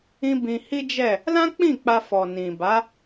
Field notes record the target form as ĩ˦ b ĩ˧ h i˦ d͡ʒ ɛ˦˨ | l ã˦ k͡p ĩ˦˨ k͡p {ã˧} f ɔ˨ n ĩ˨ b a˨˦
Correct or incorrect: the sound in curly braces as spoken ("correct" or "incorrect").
incorrect